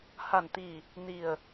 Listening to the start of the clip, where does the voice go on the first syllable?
low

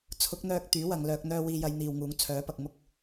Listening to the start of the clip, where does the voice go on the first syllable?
rising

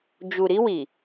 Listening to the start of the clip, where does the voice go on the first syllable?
low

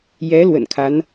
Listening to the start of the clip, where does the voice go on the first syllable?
rising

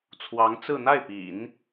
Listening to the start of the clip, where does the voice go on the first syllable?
rising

